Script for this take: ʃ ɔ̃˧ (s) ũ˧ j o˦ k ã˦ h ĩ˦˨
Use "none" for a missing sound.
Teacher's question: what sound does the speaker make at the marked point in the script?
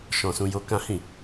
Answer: s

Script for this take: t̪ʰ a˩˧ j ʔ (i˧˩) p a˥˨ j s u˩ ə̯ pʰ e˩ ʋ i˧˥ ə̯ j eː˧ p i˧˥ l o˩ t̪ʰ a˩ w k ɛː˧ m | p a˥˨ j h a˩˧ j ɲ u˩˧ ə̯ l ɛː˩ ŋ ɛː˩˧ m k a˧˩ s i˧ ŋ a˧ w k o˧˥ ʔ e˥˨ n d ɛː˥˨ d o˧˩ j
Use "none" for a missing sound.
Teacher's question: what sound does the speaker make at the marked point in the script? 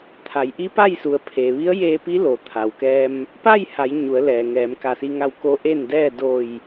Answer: i˧˥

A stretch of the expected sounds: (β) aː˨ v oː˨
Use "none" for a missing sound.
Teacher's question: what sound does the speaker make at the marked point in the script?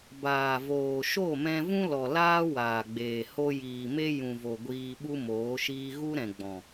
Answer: b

